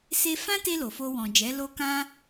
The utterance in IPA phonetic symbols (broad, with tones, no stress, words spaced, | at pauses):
se˦ fã˦te˧ lo˨fo˧wɔ̃˨d͡ʒɛ˨˦ lo˦kã˦